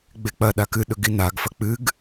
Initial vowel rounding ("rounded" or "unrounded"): unrounded